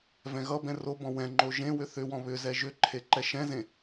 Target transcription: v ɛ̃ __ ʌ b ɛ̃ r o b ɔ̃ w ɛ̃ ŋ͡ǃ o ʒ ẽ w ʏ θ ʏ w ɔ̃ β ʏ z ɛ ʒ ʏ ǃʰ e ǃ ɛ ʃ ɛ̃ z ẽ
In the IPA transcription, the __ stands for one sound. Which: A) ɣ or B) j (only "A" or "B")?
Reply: A